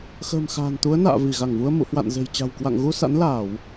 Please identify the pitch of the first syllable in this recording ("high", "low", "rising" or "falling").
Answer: low